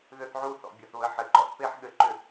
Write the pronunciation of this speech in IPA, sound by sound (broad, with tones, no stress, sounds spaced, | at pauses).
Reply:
ð ʏ˦ θ ʕ u˦ θ ɔ̰˨ bʲ ʌ˨ θ β ə˨˦ ħ ɘ˨ ǃ ɔ̰˦ θ p e˦ ħ ɠ ɘ˨˦ ǃ ʏ˨